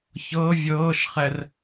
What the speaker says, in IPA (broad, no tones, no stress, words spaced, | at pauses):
çɤ vʲɤːʃχɛr